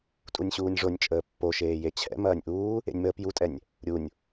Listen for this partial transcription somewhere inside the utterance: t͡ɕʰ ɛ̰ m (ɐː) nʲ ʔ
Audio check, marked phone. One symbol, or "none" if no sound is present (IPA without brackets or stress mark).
ɐː